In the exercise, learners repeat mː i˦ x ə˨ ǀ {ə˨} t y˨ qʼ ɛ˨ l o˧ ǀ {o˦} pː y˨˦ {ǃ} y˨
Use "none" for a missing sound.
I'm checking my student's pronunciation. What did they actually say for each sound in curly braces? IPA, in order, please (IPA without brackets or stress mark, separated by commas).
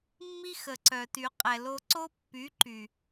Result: œ˨, o˦, ǃ